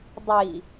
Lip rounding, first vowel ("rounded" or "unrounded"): unrounded